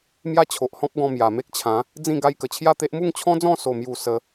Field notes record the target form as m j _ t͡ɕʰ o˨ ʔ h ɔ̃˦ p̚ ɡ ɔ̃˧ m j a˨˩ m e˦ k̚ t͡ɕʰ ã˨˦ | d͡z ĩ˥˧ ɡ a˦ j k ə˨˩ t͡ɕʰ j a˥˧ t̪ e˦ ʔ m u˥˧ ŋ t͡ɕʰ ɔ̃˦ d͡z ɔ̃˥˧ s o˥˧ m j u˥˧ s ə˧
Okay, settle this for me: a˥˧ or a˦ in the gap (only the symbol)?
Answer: a˥˧